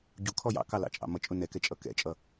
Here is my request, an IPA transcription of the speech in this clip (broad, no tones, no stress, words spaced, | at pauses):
ɟukʰɔ jɑ̰kɑlɑ̰t͡ʃʼɑ̰ mʌt͡ʃʼʊ nɛkɛt͡ʃʼʌ kɛ̰t͡ʃʼʌ